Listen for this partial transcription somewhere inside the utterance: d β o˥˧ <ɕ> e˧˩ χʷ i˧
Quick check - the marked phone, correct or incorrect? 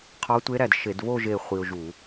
incorrect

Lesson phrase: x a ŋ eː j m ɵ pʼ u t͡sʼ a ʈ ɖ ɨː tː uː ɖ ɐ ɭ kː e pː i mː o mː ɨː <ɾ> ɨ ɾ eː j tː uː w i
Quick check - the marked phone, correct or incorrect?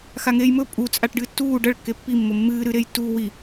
correct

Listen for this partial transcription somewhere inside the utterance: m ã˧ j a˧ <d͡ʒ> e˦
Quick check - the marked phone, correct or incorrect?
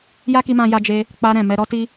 correct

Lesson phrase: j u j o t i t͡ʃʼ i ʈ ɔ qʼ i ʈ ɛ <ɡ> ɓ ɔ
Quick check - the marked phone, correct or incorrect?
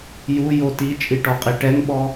incorrect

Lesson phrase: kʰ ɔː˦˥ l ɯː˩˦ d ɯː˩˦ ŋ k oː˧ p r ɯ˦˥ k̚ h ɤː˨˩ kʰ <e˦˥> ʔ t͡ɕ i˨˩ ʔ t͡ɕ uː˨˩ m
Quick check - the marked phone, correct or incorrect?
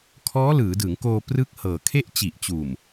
incorrect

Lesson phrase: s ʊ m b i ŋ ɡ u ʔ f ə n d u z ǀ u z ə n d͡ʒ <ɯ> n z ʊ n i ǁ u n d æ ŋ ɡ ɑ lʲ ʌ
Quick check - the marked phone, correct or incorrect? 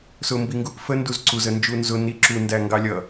incorrect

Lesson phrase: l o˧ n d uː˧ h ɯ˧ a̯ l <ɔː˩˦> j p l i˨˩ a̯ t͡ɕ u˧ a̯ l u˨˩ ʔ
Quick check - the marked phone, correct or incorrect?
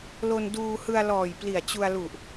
incorrect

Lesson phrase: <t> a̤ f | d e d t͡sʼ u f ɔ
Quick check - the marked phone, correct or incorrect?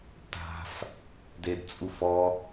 correct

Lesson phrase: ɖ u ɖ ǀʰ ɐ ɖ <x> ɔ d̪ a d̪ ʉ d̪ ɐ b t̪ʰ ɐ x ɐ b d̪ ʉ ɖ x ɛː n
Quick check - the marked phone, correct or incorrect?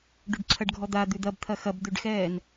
incorrect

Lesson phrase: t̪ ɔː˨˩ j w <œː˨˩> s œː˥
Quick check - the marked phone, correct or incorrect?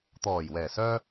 incorrect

